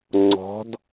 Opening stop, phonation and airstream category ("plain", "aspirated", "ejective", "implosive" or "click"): click